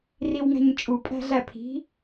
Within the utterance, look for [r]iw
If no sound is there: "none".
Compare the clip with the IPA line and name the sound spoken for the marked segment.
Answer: r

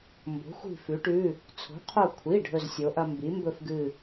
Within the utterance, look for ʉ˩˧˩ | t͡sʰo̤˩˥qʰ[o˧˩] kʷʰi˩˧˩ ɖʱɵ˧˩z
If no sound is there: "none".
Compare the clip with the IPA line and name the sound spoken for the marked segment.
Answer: o˧˩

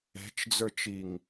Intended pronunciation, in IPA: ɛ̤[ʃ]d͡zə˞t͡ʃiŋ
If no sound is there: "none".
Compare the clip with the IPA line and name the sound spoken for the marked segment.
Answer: t͡ʃ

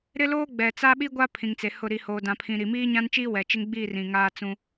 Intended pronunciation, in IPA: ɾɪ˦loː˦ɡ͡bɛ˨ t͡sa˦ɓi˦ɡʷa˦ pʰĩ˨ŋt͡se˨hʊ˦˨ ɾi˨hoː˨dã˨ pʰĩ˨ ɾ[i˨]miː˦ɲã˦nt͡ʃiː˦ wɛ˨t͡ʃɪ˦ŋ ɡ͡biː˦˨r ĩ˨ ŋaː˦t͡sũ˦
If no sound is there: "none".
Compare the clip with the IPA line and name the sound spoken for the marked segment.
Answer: i˨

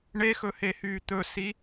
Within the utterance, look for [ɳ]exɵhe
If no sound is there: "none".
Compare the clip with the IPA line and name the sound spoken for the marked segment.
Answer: ɳ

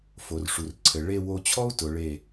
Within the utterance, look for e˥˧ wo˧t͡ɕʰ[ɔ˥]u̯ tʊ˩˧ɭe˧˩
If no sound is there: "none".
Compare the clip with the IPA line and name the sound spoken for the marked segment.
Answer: ɔ˥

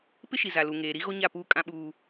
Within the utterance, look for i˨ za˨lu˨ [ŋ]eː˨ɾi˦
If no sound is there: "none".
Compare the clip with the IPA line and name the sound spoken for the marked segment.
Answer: ŋ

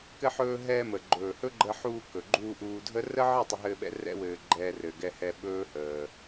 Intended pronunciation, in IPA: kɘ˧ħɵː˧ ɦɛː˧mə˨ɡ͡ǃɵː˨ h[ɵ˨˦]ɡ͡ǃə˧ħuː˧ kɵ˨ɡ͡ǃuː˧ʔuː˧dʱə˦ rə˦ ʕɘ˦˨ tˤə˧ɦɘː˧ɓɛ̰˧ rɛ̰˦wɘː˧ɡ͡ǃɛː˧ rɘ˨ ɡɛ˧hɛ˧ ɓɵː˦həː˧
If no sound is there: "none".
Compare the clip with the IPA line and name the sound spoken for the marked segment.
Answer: ɵ˦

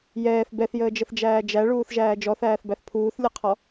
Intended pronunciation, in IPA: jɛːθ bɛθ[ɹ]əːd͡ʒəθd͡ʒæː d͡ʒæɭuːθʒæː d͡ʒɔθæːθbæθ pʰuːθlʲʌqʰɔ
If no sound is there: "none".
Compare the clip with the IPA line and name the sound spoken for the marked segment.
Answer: j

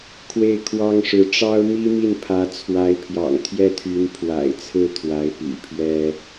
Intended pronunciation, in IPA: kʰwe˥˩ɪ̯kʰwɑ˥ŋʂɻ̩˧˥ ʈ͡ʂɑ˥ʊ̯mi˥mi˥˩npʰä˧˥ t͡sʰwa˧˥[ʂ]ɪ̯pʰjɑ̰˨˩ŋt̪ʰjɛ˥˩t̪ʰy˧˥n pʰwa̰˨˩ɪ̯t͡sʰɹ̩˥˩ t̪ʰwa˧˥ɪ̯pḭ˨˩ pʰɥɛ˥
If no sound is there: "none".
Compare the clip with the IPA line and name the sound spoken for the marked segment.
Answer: none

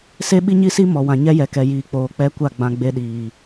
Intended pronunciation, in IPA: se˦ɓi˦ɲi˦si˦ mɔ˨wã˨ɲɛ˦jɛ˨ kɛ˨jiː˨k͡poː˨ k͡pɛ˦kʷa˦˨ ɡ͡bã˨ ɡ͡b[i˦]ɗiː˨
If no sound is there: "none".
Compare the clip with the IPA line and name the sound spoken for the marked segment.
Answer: e˦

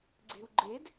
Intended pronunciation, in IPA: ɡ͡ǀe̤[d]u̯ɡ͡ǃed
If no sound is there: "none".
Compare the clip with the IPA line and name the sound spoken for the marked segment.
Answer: none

